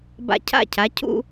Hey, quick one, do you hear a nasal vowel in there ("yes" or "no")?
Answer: no